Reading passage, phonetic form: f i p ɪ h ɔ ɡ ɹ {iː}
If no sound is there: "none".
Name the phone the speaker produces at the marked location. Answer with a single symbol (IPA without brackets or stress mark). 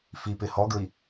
i